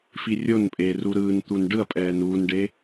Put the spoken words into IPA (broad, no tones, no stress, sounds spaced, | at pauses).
f i rʲ o n pʼ eː r u ɾ ɯː n t̪ u n ɖ ɯ ɐ̯ pʼ ɛː n uː n ɖ e